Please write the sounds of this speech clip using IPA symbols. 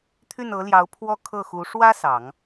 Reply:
t̪ʰy˥˩nɤ˧˥ljɑ˧˥ʊ̯pʰwɔ˥ kʰɤ˥˩xu˧˥ ʂwä˥ sɑ˨˩˦ŋ

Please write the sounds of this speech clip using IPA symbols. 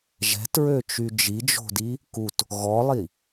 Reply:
ʒɛ̤tɹøt͡ʃy d͡ʒid͡ʒo̤di | kut | ɣɔlˠi

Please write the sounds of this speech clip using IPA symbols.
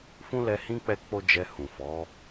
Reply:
fũ˦lɛ˧ hĩ˦ k͡pɛ˦k͡po˦d͡ʒɛ˧ hũ˨fɔ˨˦

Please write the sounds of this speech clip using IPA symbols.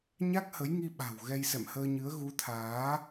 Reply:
ɲa˦˥k̚hə˨˦jŋi˧ɓa̤˨˩w ɣɛ˧jsɛ̰˧˨mhəː˧ɲɨ˨˦ə̯ ɣu˨˦t̪ʰaː˨˦

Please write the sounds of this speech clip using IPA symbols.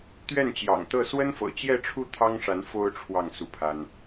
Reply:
t̪ɥɛ˥˩nt͡ɕjɑ̰˨˩ŋt̪ɤ˥˩ swə˥nfɤ̰˨˩t͡ɕjɛ˥˧ʈ͡ʂʰu˥˩ t̪ʰɑ˥ŋʂa˧˥n fo˥ʊ̯ ʈ͡ʂʰwɑ˥˧ŋ su˥˩pʰa˥n

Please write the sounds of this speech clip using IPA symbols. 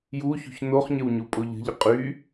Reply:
juçṳç noχɲəwɲu pʼoʎə̤ʎə qʼy

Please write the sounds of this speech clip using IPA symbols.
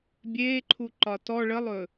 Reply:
bʲeːǃʰuǃɒ tɔ ɭəlˠɵ

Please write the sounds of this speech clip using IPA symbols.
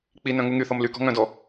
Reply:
k͡pinœ̃ ŋuŋyθɔm lykɔ̤ ŋœ̃dɔ

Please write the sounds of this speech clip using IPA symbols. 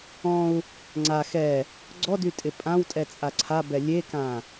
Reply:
ɔ̃u̯ | ŋ͡ǀa xɛ | ɡ͡ǀɔdytʼɪ pʼãwtʼɛt͡sʼa ǀʰabɛ lʲekã

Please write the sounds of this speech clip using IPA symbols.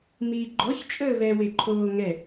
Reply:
miːɡ͡ǃɔç t͡ʃʼəːβɛ weǃʰoːŋɛ

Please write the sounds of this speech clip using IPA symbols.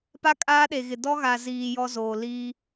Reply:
pa˦kʼaː˦ɗe˨ɣɪ˨ dɔ˦ɣa˨ziː˨ jɔ˦zoː˨ liː˦

